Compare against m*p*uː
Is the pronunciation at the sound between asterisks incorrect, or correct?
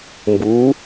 incorrect